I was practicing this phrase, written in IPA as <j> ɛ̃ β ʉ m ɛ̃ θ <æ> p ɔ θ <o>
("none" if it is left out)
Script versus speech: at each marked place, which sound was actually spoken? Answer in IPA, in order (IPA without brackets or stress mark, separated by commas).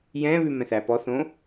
j, æ, õ